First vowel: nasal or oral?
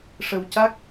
oral